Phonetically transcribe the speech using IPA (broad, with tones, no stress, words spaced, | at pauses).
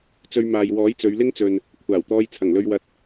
t͡sɵ˧ɥmaː˨j wɔː˨˥jt͡sɵ˨˧ɥlɪ˥ŋt͡sɵ˨n | kʷʰaː˨˩wt̪ɔː˧j t͡sʰɐ˨˩ŋlɵ˧ɥwɐ˧t̚